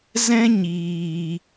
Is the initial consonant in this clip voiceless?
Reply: no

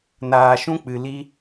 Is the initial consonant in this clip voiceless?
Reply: no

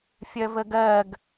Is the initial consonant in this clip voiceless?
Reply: yes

